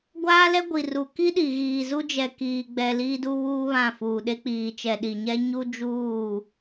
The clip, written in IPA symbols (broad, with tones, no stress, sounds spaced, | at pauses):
ɡʷ aː˦ l ɛ˦ ɡʷ i˨ r u˨ k i˦ ɗ i˨ ɣ iː˨ z u˦ d͡ʒ ɛ˨ k iː˨ ɡ͡b ɛ˨ l iː˦ d u˦ β uː˦ β ã˦˨ f uː˨ ɗ e˦ k͡p iː˨ t͡ʃ ɛ˨ ɗ i˨ ɲ ɛ˦ ɲ u˦ d͡ʒ uː˦˨